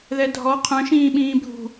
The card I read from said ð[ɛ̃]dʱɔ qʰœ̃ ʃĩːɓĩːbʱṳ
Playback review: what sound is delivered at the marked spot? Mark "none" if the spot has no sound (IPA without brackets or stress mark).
ɛ